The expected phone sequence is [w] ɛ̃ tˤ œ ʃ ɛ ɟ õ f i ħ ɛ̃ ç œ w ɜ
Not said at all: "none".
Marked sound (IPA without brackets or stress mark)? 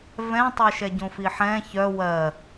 v